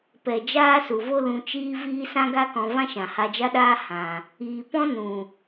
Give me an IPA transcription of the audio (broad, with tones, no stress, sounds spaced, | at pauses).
p ɛ˨ d͡ʒ aː˦ s u˨ v o˦ l ũ˧ t͡ʃ iː˦ v iː˦ s ã˦ ɡ a˦ k ɔ̃˧ v ã˦ ʃ ã˨ h a˧ d͡ʒ a˦ ɗ aː˦ h ã˨ | iː˨ p ɔ̃˦ n ũ˨